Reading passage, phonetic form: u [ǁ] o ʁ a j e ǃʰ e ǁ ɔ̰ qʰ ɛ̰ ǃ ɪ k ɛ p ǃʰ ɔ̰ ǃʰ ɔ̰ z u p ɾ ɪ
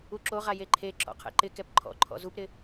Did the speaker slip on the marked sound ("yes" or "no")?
no